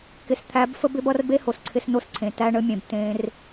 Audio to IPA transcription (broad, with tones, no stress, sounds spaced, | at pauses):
k ɪ˨ s t̪ʰ æ˨˦ b f ə˦ b ɪ˦ b ʌ˦ r b e˦ h o˨ s ǀʰ ɪ˧ s n o˧ s ǀʰ ẽ˨ t æ˧ ɳ ə˧ mʲ ẽ˨ b t ẽ˧ r